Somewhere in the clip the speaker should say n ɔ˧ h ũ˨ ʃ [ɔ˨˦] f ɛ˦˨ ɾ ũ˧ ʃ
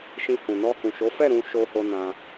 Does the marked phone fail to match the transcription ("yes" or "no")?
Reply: yes